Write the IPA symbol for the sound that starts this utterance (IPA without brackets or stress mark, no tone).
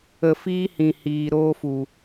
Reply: ə